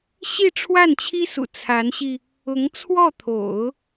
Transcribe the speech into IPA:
ɕ i˥˧ ʈ͡ʂʰ w a˥˩ n t͡ɕʰ i˥ s ṵ˨˩ t͡sʰ a˧˥ n ɕ i˧ | ʊ˧˥ ŋ t͡sʰ w ɔ˥˩ t̪ʰ o̰˨˩˦ ʊ̯

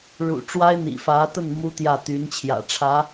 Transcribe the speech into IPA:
ɻ ṵ˨˩ ʈ͡ʂ w a˥ ɪ̯ n̪ ḭ˨˩ f ä˧˥ t̪ ə˥˩ n m u˥ t̪ j ä˥˩ t̪ y˧˥ n t͡ɕʰ j ä̰˨˩ ʈ͡ʂʰ ä˧˥

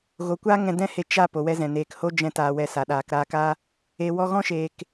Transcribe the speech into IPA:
ɣ o˨ kʷ aː˦ ŋ ɛ̃˧ d ɛ̃˦ h e˧ t͡ʃ a˦˨ p o˨ w ɛ˧ z ɛ̃˨ n eː˨ k h o˦ d͡ʒ ɛ̃˧ t aː˧ w ɛ˧ s a˨ ɗ aː˨ k ɾ aː˧ k a˦ | e˨ w ɔ˧ ɣ ɔ̃˦ ʃ eː˨ k

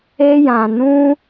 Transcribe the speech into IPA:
e˧ j ã˨ n ũ˧

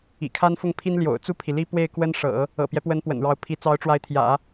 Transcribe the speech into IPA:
ḭ˨˩ kʰ a˥ n f ʊ˥˩ ŋ pʰ i˥ n l j o̰˨˩ ʊ̯ t͡s u˥˩ pʰ i˩ l i˥ p w e˥˩ ɪ̯ k w ə˥ n ʂ ɤ̰˨˩˦ | ɤ̰˨˩ p j ɛ˦ p w ə˧˥ n p w ə̰˨˩ n ɻ ɑ˧˥ ʊ̯ pʰ i˧˥ t͡s ɑ˧˥ ʊ̯ ʈ͡ʂ w a˧˥ ɪ̯ t̪ʰ j ä̰˨˩˦

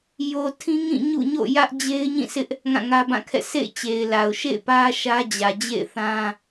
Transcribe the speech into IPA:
j o˨ tʰ ĩ˦ ŋ ĩ˦˨ ɲ ṵ˦˨ ɲ o̰˦˨ j ä˦ ʔ d͡ʑ e˦ ɪ̯ ɲ ĩ˦˨ s ɪ˦ ʔ | ŋ ã˦˨ ŋ ä˦ b ã˦˨ kʰ ɛ̰˦˨ s ḛ˦˨ ɪ̯ t͡ɕ e˨ ɪ̯ l a˨ ʊ̯ ʃ ḛ˦˨ ɪ̯ p ä˦ ʃ ä˦ d͡ʑ ä˨ d͡ʑ ḛ˦˨ ɪ̯ θ ã˦

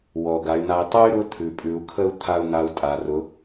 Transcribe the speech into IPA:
w ɔ˩ ɡ a˩˧ y̯ n̪ a˧ i̯ tˤ ɵ˥ y̯ ɾ ʊ˧˥ t̪ʰ ʉ˩ pʼ ʉ˩˧ u̯ kʰ ə˥ u̯ t̪ʰ a˥ u̯ n̪ a˧˥ u̯ tʼ a˩˧ r ʊ˧˥

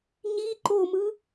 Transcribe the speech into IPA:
ɲ i ǃ o m ɯ

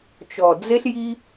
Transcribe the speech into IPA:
t͡ʃ ɔ˨ d͡z e˦ ɬ j i˦

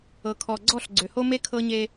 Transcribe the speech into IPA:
ɤ˨ kʰ ɔ˨ ɡ͡ǀ ɔ˦˨ ɬ ɡ͡ǀ ø˨ h o˦ m e˦ kʰ ɤ˦ ɲ e˦

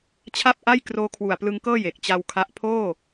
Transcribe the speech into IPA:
t͡ɕʰ a˥˩ p̚ ʔ a˥˩ j k r oː˦˥ kʰ w u˨˩ a̯ p l ɯ˧ ŋ k ɤː˥˩ j e˨˩ k̚ t͡ɕ a˧ w kʰ a˦˥ ʔ pʰ oː˥˩

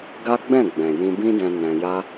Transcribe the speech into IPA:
ɡ a˦ ɡ͡b ɛ̃˦˨ ɡ͡b ɛ̃˨ j ĩ˧ b ĩ˦ d ɛ̃˧ n ɛ̃˧ j a˦

